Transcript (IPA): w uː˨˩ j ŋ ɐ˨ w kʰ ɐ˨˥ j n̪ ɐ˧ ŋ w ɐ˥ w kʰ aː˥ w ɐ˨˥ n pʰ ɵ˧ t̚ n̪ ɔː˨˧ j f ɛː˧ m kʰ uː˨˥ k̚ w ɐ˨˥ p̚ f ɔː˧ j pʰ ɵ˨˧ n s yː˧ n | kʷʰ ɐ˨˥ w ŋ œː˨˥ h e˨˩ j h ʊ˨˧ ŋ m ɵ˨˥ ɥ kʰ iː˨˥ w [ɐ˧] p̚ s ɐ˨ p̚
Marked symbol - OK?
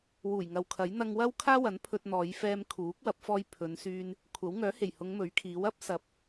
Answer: no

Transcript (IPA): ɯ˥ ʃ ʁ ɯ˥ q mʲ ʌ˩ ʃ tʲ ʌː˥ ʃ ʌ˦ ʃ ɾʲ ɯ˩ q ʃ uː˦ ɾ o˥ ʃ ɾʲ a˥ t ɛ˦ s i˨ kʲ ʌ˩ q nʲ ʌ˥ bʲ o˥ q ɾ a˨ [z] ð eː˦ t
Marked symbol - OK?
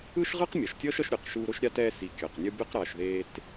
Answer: no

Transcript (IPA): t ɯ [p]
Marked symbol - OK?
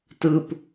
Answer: yes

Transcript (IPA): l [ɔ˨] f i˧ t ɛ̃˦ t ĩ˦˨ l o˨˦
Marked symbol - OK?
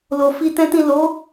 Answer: no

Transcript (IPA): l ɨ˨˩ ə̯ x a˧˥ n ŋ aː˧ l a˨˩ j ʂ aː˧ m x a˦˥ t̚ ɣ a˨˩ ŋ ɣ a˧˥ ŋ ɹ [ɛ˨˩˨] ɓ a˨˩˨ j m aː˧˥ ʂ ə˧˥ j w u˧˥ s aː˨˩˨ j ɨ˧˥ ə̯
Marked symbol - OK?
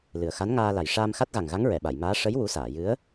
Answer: yes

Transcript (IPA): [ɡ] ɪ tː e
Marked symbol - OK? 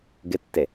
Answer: yes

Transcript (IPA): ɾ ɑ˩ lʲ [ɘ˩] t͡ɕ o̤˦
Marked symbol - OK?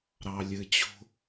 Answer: yes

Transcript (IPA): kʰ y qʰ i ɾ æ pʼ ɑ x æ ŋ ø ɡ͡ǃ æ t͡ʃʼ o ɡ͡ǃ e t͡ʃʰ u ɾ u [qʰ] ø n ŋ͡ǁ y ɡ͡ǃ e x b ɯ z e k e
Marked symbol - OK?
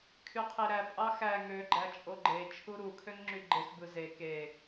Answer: no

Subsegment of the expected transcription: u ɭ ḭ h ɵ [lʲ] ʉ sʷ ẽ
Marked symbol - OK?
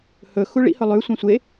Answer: no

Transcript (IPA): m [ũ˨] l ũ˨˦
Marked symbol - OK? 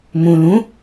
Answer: yes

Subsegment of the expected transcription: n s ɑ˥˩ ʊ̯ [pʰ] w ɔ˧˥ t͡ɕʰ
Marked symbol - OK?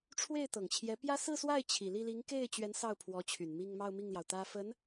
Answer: yes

